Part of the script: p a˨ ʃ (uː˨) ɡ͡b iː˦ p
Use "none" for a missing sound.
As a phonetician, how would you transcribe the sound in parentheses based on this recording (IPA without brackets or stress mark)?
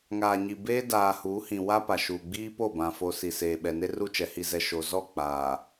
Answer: uː˨